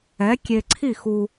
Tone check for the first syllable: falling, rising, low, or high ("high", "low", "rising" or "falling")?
rising